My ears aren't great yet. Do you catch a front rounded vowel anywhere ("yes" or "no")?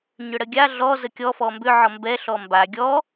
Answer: yes